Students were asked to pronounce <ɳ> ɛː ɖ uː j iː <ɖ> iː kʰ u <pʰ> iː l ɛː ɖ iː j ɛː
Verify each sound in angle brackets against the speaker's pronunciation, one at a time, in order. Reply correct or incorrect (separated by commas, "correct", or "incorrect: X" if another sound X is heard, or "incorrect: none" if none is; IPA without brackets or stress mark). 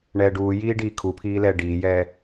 correct, correct, correct